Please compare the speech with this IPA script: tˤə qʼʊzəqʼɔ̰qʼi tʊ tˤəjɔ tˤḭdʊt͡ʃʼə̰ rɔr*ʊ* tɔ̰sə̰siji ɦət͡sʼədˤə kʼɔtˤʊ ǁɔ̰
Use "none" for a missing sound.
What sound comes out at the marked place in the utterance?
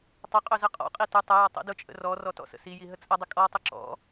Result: ɔ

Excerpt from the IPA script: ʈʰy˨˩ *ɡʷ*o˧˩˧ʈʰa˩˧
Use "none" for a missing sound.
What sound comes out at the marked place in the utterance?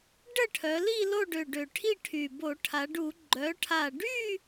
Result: b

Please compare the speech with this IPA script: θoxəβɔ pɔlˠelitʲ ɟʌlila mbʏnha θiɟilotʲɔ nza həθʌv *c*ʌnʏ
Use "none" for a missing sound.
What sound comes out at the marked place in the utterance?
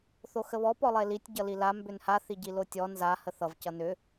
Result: c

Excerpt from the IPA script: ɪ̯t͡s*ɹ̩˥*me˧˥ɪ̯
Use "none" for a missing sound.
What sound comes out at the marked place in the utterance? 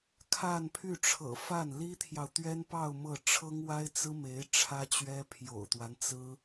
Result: ɹ̩˥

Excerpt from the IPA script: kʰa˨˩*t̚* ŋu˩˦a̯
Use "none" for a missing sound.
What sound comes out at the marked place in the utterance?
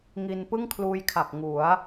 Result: k̚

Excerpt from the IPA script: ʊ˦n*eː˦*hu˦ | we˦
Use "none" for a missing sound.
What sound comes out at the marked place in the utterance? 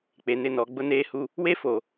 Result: eː˦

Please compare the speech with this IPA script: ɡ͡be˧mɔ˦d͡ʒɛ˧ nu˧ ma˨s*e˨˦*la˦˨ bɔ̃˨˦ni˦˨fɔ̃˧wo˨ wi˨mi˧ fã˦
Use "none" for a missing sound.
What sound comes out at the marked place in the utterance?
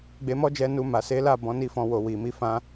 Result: e˨˦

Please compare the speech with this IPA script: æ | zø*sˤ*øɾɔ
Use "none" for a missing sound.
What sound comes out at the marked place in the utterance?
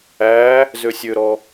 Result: sʲ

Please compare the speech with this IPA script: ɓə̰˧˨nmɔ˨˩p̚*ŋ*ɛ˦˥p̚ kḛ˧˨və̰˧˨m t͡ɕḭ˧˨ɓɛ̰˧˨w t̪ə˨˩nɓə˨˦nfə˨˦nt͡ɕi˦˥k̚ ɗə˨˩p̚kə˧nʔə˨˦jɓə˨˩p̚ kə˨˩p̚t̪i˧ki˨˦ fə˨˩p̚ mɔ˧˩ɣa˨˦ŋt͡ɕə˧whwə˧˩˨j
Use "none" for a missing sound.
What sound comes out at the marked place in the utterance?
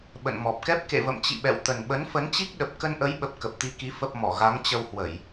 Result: k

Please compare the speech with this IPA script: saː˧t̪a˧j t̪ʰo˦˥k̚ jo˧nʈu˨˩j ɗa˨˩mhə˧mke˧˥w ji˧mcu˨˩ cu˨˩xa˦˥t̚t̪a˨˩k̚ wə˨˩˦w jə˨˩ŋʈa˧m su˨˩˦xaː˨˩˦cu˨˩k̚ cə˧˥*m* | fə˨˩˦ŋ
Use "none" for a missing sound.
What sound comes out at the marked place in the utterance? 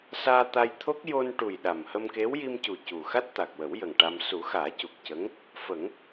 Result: ŋ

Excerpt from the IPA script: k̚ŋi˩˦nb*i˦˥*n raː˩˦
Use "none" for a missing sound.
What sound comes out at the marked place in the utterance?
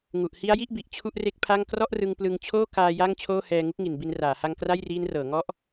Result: i˧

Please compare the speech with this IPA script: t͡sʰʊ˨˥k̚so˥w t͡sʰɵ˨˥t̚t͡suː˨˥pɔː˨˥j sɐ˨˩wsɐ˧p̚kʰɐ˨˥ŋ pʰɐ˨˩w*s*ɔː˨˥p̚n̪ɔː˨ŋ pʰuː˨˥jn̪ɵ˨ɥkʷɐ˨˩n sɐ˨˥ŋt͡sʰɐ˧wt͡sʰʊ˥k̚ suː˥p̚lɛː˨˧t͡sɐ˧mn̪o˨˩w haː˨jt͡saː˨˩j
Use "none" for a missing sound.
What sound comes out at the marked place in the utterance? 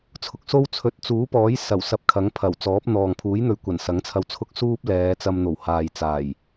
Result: t͡s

